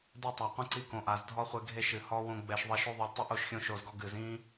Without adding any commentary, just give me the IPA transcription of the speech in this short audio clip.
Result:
d ɛ˦˨ tˤ a˨ qʷ ĩ˧ ǀ i˧ k õ˨ ʔ a˨ z dʱ ɔ˦ χʷ e˧ ɡʱ e˦˨ ʃ ɨ˨ h ɔ˦ w õ˦ ɡ͡b ɛ˧ ʃ ðˤ i˧ ʃ o˦ ðˤ e˧ lʲ tˤ ɨ˦ ʔ o˨˦ ʃ xʲ õ˧ ʃ o˨ z ɡ ɔ˧ ɡ ɨ˨ z ĩ˦

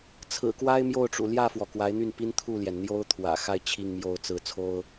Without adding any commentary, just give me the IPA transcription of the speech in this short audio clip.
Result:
t͡sʰ ɹ̩˨˩ k w a˥ ɪ̯ m j o˥˩ ʊ̯ ʈ͡ʂ ṵ˨˩ l j ä˥˩ f w ɔ˩ k w a˧˥ ɪ̯ n̪ y˥˩ n p i˥ n t̪ʰ u˥˩ l j ɛ˩ n n̪ j o˥ ʊ̯ t̪ʰ w ä̰˨˩ x a˥˧ ɪ̯ t͡ɕʰ i˥˧ ŋ m j o˥˧ ʊ̯ t͡s ɹ̩˥˩ t͡sʰ o˥ ʊ̯

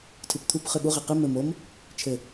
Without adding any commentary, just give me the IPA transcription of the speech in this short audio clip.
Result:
tʰ ɨ p t̪ʰ u p χ ɨ ɠ u ʁ e q ɨ m ɘ m o m | t͡ʃʰ ɘ

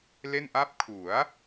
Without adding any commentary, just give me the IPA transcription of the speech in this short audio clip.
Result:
l e˥˩ n ʔ a˥˩ p̚ kʰ u˩˦ a̯

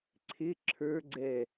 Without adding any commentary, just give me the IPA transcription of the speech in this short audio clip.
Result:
ǀʰ ɪ ǁʰ ə˞ ɡ͡ǀ ɛ

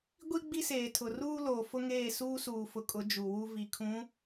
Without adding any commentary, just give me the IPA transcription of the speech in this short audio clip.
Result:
ɡʷ i˦ ɡ͡b i˦ s eː˨ tʰ ʊ˨ r uː˦ l oː˨ f ʊ˦ ŋ eː˦˨ s uː˦ s uː˨ f ʊ˨ kʼ ʊ˨˦ d͡ʒ u˨ w u˦ v i˨ kʰ ũ˨˦

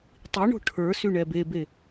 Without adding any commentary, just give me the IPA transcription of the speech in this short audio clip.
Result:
tˤ i ɳ o̤ ʈʰ ə˞ s y ɳ ɛ b e b e

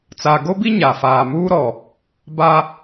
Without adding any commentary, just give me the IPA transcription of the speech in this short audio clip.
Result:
t͡s a˨ ɡ o˦ b i˦ ɲ a˨ f aː˨ m uː˦ ɾ ɔ˨ | b a˦

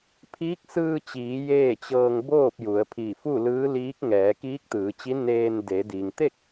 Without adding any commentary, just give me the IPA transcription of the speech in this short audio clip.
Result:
pʰ iː˧˥ k̚ s ɯː˧ t͡ɕ iː˩˧ j eː˥˨ t͡ɕ ɤː˧ ŋ b oː˥˨ p̚ j u˩˧ ə̯ pʰ i˧˩ f u˥˨ l ɯː˧˥ l iː˧˥ k̚ ŋ ɛː˩˧ k iː˧˥ k̚ t̪ ɯː˩˧ t͡ɕ i˧˥ n eː˧ n d e˩˧ d i˩ ŋ t̪ e˥˨ k̚

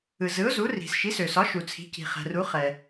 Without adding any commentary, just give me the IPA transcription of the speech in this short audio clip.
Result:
ɯ˩ z ɯ˩˥ ʊ̯ z u˩˥ r i̤˩ s ʃ i˩˥ s ø˩ s ɒ˩˥ ʃ u˩ t͡sʰ i̤˩˥ c i̤˩ χ ɛ̤˩ r u˩˥ χ ɛ˩

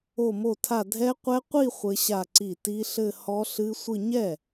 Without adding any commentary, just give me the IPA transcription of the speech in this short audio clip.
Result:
o˥˧ m o˥˧ tʰ a˥˧ dʱ ɛ˦˥ qʷ ɛ˦˥ qʷ i˥˧ χʷ ɘ˦˥ ɕ a˥˧ ǀ i˥˩ t i˦˥ ɬ ɘ˥˧ h ɔ˦˥ ɬ ɨ˦˥ sʷ ɨ˥˧ ɲ ɛ˥˩

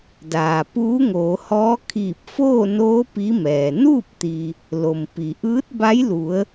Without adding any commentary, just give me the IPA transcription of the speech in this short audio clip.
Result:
d aː˩ p uː˧˥ ŋ oː˩˧ h ɔː˧˥ kʰ iː˧˩ p̚ f oː˥˨ n oː˧˥ p i˧˥ m ɛː˩ n uː˥˨ p̚ t̪ i˩ | l o˩ m p i˩ ʔ ɯː˧˥ t̚ b a˧˥ j l u˩˧ ə̯

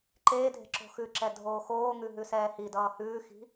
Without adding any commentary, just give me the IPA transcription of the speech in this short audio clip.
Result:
ǃ eː dʱ e̤ ǁ o̤ x ʉ ǁ ɛ dʱ oː x oː ŋ ʉ ɦ ʉ s ɛː h i d ʌː h ʉː x i̤

